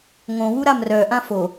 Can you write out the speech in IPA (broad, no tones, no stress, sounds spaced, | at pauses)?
ŋ õ w u ɾ a m r œ ʔ ã f o